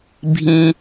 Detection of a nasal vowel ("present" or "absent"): present